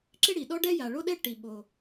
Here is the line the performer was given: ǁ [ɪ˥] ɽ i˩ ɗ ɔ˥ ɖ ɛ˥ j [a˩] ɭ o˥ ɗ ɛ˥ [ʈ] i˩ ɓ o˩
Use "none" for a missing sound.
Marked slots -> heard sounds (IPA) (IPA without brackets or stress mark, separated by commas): ɪ˥, a˩, ʈ